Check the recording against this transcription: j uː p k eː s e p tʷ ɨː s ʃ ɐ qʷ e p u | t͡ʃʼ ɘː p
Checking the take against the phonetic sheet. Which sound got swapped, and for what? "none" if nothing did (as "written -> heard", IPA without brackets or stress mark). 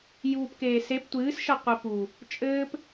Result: none